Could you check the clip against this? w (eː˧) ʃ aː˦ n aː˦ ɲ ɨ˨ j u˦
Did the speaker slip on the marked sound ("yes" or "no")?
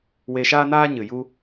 yes